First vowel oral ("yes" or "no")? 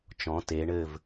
no